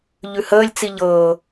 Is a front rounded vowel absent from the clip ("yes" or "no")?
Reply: yes